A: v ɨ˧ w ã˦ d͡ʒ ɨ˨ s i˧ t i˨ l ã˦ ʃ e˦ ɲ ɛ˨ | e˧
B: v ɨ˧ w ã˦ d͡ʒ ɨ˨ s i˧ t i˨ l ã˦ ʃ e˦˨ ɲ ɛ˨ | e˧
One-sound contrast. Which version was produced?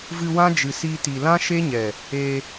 A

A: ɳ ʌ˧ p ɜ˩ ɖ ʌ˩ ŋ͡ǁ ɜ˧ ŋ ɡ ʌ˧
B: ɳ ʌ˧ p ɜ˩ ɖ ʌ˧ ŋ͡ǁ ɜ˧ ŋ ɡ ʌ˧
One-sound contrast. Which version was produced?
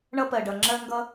A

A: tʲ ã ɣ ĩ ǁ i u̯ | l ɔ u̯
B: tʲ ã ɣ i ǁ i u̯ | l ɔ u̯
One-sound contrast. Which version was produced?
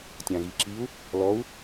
B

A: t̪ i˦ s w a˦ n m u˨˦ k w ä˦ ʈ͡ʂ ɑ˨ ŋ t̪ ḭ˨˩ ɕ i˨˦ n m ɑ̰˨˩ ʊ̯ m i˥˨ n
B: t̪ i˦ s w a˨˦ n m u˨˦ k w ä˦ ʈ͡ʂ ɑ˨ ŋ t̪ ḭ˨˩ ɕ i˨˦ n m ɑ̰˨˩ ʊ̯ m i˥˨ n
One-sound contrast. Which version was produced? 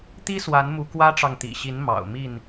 B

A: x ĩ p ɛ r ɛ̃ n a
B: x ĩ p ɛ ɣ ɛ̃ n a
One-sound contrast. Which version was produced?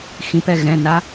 B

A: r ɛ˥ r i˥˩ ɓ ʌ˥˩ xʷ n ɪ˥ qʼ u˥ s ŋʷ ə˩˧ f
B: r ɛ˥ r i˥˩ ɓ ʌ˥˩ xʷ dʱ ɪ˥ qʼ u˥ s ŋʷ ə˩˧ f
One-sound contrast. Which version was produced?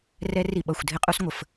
B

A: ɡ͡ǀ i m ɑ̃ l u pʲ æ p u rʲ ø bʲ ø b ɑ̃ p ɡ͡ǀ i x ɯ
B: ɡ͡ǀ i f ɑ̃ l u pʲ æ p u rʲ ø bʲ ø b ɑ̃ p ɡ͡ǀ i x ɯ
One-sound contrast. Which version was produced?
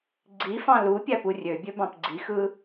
B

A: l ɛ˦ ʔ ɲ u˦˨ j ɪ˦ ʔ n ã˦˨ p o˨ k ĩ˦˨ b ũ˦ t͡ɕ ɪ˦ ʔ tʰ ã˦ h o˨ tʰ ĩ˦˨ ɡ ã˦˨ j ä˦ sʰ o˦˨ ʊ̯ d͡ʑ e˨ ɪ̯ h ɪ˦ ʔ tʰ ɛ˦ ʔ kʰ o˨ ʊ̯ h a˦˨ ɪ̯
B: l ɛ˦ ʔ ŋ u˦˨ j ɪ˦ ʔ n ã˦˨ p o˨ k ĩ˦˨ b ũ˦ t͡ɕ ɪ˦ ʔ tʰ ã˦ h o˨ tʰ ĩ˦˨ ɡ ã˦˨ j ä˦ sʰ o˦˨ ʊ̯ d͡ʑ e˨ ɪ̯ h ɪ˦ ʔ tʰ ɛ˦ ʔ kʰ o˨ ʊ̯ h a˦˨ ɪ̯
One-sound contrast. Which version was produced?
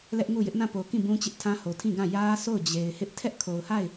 B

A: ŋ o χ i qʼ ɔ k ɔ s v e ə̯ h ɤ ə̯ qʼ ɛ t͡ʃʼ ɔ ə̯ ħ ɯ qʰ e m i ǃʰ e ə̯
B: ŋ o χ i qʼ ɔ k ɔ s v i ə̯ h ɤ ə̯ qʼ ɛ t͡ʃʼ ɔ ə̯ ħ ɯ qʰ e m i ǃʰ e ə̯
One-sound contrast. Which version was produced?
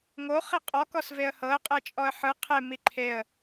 A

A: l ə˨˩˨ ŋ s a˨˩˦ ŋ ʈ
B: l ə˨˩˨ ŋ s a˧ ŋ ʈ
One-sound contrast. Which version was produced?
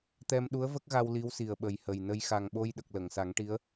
A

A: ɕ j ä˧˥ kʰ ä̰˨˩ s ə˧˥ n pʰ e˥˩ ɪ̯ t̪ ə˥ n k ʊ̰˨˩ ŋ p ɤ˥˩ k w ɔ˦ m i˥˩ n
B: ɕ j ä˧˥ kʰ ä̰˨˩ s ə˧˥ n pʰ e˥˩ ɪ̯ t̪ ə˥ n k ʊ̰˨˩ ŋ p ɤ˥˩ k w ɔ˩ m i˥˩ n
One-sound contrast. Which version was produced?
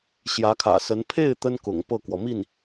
B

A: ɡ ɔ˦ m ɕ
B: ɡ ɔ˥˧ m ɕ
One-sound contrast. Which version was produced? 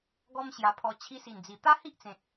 A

